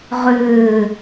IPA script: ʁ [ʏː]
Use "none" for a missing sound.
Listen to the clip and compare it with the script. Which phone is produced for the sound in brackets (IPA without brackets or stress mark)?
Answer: ʏː